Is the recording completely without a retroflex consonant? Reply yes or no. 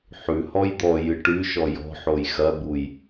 no